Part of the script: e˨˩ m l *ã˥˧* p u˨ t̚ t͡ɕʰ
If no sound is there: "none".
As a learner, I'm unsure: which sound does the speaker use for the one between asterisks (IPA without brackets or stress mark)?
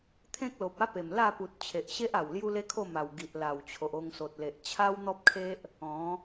a˥˧